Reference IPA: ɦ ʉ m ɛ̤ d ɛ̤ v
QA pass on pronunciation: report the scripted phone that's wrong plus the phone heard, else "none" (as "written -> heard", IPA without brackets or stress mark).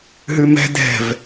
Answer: none